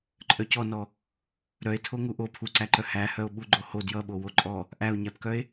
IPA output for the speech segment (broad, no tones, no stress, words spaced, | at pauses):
ǃʼœcɔnɔ | ɾœe̯ tʰoŋuʔo pʰuǀæǃœ hæhœo̯ ɓuɡ͡ǃoho djʌɓo woǃʼɔ | ʔæo̯ɲæpkœe̯